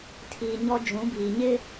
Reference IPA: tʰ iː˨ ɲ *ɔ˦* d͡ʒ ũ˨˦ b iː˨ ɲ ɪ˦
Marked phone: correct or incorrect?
correct